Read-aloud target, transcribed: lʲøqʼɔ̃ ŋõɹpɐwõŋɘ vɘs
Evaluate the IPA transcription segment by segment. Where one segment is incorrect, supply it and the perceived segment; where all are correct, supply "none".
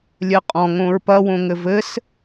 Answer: ø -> ɘ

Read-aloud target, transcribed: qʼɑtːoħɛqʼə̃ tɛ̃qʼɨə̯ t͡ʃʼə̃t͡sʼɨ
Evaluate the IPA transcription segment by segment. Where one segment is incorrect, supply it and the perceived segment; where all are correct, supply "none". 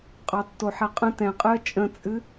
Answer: none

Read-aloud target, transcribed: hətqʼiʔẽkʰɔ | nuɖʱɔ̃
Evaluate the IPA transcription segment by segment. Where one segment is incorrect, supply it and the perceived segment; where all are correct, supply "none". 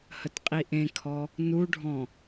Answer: none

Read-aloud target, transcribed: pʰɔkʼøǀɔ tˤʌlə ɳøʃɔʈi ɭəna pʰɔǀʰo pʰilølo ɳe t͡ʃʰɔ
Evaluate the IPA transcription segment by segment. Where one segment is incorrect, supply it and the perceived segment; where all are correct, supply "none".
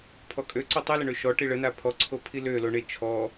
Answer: none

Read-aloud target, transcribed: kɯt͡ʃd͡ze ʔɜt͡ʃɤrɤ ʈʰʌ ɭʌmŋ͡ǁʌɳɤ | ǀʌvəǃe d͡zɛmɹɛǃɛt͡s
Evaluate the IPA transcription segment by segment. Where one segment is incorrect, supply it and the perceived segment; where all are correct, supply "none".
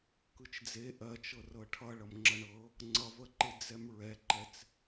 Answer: ǀ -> ŋ͡ǀ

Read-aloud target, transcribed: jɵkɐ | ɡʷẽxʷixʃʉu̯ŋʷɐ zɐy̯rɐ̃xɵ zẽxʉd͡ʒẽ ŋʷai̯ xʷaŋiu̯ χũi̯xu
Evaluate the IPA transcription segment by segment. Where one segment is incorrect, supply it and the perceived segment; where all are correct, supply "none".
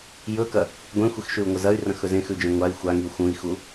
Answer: χ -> x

